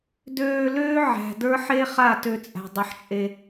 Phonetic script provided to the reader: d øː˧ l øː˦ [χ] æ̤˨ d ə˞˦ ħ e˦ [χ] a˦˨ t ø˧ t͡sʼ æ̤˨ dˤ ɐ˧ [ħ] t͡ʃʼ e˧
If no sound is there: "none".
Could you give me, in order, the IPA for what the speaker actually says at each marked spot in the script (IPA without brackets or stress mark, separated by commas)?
ʕ, χ, ħ